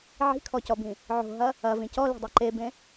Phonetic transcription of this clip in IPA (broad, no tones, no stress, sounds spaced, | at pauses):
ʕ i̤ kʰ ɔ c ɔ b ĩ | ʕ o̤ ɦ ɐ | ɐ v ĩ c ɔ l i̤ dˤ e ǃ e b ẽ